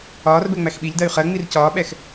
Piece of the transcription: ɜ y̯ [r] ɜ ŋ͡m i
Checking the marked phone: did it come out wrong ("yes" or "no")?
yes